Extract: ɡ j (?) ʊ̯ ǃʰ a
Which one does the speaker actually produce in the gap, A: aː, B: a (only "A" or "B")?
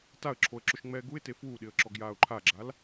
A